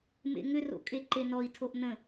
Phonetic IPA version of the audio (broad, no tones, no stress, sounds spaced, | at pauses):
m ḛ ŋ ʏ r o̰ kʼ e ǃ e n ɔ i̯ tʰ o ʔ n ə̃